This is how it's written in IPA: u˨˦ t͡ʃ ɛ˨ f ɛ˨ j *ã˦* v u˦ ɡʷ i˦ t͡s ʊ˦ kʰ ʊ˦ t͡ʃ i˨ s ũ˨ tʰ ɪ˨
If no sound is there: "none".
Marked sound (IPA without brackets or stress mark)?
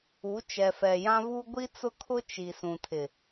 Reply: ã˦